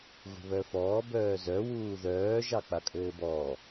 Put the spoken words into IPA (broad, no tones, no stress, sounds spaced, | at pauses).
ɣ ṳ β œ f ɔː b œː z œ w uː ð œː ʒ ɑ k͡p a kʼ ɘː b ɔː